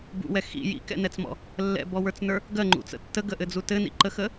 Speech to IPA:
b ṵ w ɛ x ḭ j ḭ k ɛ̰ n ɛ t͡s m ɔ̰ | lː ɛ̰ b ɔ w ə˞ t͡s n ə˞ | ɡ ɜ ŋ͡ǃ ṵ t͡s ə̰ tː ə ɡ ə ʔ ɘ d͡z u t ɘ n ḭ ǃ ə x ə

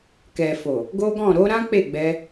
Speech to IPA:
k ɛ˨ f o˨ | ɡ o˦ ɡ ɔ̃˦˨ ɾ o˧ ɾ ã˦ k͡p e˦˨ ɡ͡b ɛ˧

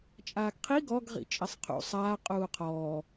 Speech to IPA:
t͡ʃʼ aː ɡ qʰ i ɡ ɔ ɡ ʁ ḭ t͡ʃʼ e sˤ qʰ ṵ sˤ aː qʼ uː qʰ ɔː

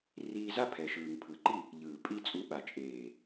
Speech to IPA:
r iː˧ z a˦ pʰ ɛ˨ ʃ ɯː˨ ŋ pʰ ɯ˨ ǃ i˦˨ | ʎ ɯː˨ pʼ i˧ t͡sʼ u˨˦ ɓ a˨ t͡ʃʼ eː˨

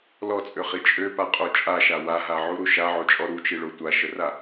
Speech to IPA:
l ɔ t͡sʼ ø χ i t͡ʃʼ ø p a qʼ o t͡ʃʼ a ʃ a w a ɦ a ʕ u ɾ u ʃ a ʕ o t͡ʃʼ ɔ ɾ u t͡ʃ i ɭ o tʷ a ʃ ə r a

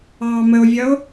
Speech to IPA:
ɑː m ə o̯ vʲ ʌ o̯

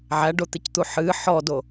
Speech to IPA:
ʕ æ ɖ o t̪ e c t̪ u ħ ɨ ħ ɔ d o

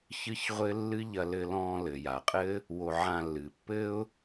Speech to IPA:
ç ɨ˦ ç ʁʷ ɘ˦ lː ɨ˦ ʎ ɐ˧ l ɘ˧ l ɔ̃ː˧ l ɘ˨ j a˨ qʼ ɘ˦ | w o˧ ʕ ã˧ lː ɨ˨ pː ɘ˦ ʊ̯

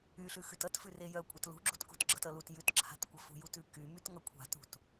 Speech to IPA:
y ɬ ʉ x ʉ t ʌ t f ʉ r e j œ kʷʼ ʌ t l ṳ ɡ͡ǁ ṳ t k ṳ t ɡ͡ǁ ʌ t ʌ l u t j ʉ t ǁʰ a̤ t kʷ ʌ f ṳ j u t ʉ k y m y t ŋ ʌ kʷʰ a̤ t ṳ t

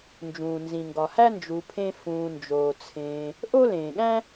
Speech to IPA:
n d͡ʒ ũː˩ n z ĩ˩ ŋ ɡ ɒ˩ h æ˥ n d͡ʒ u˨ pʰ ẽ˦ f ũː˨ n d͡ʒ oː˩ t͡sʰ ẽː˨ | ʔ o˥ l ẽː˩ ɠ æ̃˥

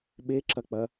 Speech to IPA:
ɓ e ǁ ɐ k͡p ɐ

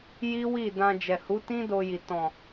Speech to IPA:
j i˦ w i˦˨ d ã˧ d͡ʒ ɛ˨ h u˨˦ t ĩ˦ d o˧ j i˨ t ɔ̃˨

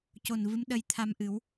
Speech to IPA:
c o˨˩ n v ɨ˧˥ m ɗ ə˧ j t̪ʰ a˧ m ʔ ɨ˨˩˦ w

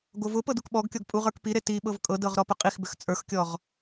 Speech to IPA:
ɡ o v ʊ p ɤ d u k ɓ ɔ ɡ kʲ ɔ ɡ pʼ u ʁ ə˞ k p i ɾ e t i ɓ ɤ v kʼ ɤ d ɤ ʁ ɾ ɔ p ʊ qʼ i x b ʏ x t͡sʼ ə˞ x kʲ ɔ ʁ

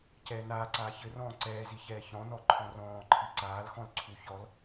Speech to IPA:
c ɛː n aː ǀ aː ç ɘ r ɔ̃ː ǀ ɛː z i ç ɛː ç ɔ̃ n ɔ ǃʰ ɔ̃ r ɔ̃ː ǃʰ i ǀ aː l x ɔ̃ l ǀʰ u ç ɔ l

